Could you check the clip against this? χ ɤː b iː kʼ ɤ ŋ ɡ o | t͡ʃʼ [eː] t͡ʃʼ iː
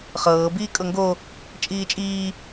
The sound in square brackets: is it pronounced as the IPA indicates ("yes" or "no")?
no